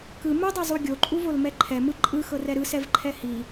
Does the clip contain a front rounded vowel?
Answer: no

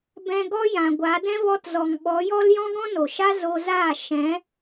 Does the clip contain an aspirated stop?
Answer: no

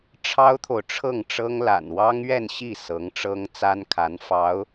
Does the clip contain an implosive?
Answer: no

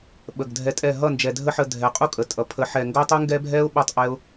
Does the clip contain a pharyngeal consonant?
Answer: yes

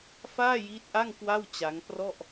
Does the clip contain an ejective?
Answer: no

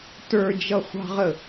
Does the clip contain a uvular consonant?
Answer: yes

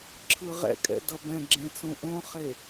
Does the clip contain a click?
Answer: yes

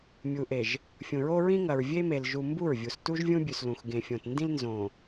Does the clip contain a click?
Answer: no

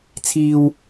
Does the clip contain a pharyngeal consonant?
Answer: no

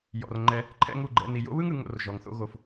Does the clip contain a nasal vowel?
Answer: no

